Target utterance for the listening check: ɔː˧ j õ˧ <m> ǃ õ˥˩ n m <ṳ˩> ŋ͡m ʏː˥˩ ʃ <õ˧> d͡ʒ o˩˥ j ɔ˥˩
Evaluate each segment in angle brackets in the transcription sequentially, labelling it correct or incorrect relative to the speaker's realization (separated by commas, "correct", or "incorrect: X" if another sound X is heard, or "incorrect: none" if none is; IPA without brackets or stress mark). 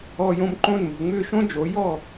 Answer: correct, correct, incorrect: õ˥